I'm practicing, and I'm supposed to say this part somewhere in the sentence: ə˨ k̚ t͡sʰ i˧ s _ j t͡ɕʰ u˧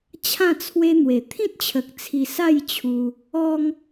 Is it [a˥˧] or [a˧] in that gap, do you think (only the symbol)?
a˥˧